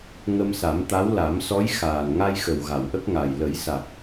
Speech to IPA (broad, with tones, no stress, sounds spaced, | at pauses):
ŋ ə˧ m s a˨˩˦ m t̪ a˧˥ w l a˨˩˦ m s ɔ˧˥ j x aː˨˩ n ŋ a˧ j x ə˨˩ w ɣ a˨˩˨ w ʔ ə˦˥ k̚ ŋ a˨˩ j l ə˨˩˦ j s a˨˩ k̚